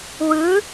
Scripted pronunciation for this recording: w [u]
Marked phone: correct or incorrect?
incorrect: ɯ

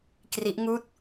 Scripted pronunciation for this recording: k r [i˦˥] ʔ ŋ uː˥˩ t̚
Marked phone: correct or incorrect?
correct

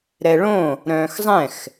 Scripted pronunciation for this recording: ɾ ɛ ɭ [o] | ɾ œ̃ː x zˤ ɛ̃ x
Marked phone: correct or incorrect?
incorrect: õ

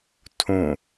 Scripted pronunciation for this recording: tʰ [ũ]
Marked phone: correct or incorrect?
correct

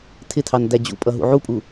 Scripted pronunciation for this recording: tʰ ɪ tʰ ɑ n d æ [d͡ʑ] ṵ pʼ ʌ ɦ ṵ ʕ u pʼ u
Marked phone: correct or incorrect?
correct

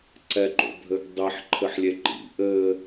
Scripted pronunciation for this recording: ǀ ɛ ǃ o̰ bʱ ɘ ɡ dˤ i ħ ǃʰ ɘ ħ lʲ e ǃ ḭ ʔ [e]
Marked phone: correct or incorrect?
incorrect: ɘ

